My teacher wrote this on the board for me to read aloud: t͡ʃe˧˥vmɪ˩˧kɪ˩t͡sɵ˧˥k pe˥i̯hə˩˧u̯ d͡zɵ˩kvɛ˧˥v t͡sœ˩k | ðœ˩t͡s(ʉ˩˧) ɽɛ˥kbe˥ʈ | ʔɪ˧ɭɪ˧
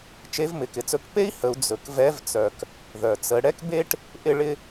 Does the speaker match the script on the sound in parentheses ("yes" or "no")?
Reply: no